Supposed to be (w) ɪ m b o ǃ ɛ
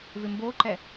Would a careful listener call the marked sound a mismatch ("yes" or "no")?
yes